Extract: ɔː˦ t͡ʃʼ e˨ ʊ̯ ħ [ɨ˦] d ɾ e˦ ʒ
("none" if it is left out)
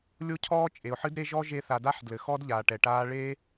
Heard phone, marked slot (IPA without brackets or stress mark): ɨ˦